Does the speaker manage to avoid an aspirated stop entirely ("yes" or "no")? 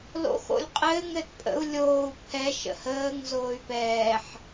no